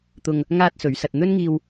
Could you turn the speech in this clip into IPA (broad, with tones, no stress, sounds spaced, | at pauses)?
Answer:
t̪ ʊ˧ ŋ | ŋ aː˥ t̚ s ɵ˨˧ ɥ s ɐ˧ t̚ n̪ ɵ˥ n ŋ iː˧ w